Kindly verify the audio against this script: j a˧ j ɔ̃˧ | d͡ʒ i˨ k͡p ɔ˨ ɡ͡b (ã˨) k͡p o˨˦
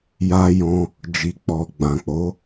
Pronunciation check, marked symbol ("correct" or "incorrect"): correct